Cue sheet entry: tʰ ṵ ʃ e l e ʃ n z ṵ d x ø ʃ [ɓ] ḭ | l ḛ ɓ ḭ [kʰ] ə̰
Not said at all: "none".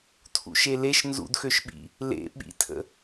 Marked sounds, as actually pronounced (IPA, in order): ɓ, tʰ

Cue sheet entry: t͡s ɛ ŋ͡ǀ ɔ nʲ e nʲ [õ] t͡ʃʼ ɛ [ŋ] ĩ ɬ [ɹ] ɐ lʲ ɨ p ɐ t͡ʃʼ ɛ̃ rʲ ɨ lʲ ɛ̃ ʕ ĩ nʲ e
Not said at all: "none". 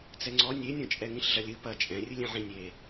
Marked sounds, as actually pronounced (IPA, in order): ɔ̃, ŋ, ɮ

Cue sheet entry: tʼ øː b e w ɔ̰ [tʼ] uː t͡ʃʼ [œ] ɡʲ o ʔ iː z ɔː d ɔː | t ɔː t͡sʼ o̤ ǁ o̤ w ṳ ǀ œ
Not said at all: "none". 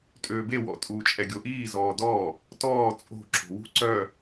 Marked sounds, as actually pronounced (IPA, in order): tʼ, ɛ

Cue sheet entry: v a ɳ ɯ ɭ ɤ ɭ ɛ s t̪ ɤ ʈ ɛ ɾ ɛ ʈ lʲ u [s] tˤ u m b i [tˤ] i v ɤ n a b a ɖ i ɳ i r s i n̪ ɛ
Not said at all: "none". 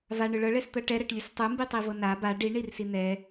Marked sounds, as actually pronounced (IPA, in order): s, tˤ

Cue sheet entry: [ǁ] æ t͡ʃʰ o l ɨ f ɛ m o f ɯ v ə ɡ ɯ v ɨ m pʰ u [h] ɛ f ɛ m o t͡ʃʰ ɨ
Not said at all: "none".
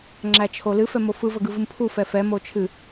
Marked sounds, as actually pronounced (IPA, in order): ŋ͡ǁ, f

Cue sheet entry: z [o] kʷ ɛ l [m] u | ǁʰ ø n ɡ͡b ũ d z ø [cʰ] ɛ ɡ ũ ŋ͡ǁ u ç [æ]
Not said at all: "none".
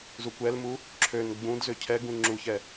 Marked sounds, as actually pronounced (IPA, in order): u, m, cʰ, ɛ

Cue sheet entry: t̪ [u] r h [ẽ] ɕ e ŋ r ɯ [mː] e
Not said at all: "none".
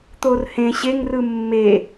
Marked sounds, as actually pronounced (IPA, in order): o, ẽ, mː

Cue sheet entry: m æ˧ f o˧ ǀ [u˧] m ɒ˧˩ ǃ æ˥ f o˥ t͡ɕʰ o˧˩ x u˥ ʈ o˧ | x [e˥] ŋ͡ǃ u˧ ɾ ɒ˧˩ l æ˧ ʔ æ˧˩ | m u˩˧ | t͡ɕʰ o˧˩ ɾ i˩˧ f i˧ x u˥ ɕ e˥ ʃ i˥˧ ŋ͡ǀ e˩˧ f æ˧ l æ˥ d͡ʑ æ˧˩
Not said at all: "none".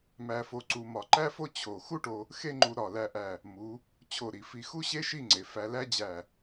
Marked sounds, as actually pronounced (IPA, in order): u˧, e˥

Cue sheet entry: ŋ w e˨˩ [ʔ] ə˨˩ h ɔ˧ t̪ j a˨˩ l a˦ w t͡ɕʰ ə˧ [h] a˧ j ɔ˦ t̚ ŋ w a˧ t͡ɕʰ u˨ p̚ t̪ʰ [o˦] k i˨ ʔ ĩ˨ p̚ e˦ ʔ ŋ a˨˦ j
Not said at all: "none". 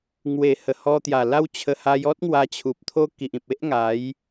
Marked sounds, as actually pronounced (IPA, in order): h, h, o˦

